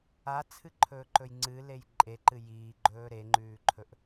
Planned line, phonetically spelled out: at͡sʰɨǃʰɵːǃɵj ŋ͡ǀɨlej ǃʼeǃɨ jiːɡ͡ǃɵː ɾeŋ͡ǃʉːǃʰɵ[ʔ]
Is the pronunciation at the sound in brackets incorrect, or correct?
correct